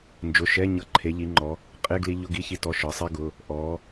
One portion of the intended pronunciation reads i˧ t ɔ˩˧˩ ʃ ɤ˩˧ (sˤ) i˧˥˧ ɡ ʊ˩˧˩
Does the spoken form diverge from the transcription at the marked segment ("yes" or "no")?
no